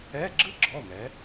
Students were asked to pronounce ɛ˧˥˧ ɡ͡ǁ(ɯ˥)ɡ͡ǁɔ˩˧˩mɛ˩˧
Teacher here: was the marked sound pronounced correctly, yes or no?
yes